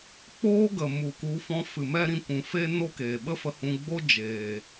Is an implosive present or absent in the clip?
present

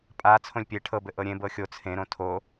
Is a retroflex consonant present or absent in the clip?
present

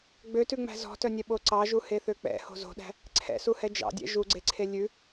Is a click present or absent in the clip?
present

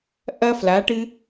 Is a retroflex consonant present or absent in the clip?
present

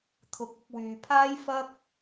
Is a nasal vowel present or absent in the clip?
absent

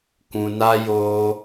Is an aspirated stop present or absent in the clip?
absent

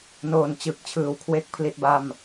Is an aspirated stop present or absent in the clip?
present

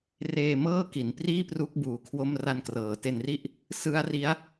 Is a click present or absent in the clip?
absent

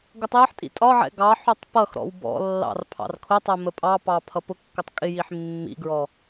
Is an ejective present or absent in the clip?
present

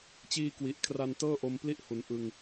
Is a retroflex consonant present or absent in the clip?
absent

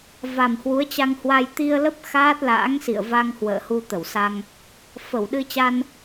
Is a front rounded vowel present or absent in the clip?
absent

